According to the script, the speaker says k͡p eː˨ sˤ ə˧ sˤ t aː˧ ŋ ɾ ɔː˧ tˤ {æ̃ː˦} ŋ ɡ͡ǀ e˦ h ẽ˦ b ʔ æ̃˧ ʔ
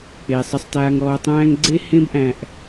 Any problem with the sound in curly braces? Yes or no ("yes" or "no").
no